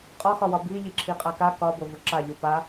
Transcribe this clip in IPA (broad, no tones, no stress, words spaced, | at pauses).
qʼɒxɒwɒ bi ʎiǁʰiqʼaka kɒ bovuǁa ʎupa